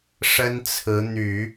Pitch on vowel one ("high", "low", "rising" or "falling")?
high